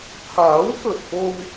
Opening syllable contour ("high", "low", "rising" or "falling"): rising